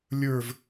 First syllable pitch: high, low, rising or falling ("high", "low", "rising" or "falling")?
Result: falling